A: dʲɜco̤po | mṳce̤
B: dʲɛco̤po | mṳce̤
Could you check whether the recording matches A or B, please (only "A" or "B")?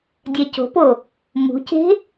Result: B